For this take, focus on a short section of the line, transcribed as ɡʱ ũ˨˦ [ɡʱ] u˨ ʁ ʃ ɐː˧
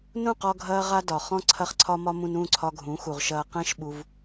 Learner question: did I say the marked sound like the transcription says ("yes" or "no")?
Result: no